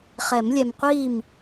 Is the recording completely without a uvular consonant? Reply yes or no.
no